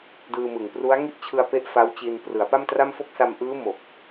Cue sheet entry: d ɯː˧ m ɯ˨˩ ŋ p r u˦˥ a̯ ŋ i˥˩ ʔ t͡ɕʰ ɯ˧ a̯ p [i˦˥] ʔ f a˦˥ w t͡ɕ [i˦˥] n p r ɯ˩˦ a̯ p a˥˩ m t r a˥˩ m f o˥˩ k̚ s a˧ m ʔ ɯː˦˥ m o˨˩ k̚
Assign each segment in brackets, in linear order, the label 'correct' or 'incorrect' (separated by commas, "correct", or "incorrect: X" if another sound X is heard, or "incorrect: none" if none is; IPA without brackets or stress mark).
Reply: incorrect: e˦˥, incorrect: i˧